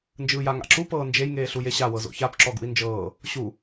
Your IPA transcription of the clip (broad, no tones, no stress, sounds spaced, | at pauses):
n d͡ʒ ɯː j a ŋ a̰ ǁ u p ɤː n d͡ʒ e j ŋ eː ɬ u j e ɕ a w ɤ z o̰ ç a p ǁ ɔ ɡ ṵ i̯ n d͡ʒ ɤː | ɕ u